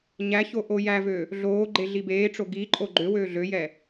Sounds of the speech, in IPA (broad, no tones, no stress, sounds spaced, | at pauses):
ɲ æ ç o ʔ o j æ v ø | ɮ oː ɡ͡ǃ e ɮ i b eː ʈ͡ʂ o ɡ i ǃʼ o ɡ͡ǃ ø w øː ɮ ø j ɛ